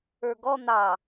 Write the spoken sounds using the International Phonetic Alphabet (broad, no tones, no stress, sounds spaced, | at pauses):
ə˞ ɡ ɔ n̪ ɑ